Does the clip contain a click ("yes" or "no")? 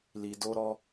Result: no